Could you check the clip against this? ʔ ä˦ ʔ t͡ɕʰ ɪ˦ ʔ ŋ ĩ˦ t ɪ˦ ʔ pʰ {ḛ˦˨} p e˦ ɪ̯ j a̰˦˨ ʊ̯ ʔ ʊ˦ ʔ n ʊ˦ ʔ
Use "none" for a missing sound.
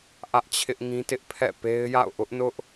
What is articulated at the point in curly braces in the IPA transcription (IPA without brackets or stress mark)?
ɛ̰˦˨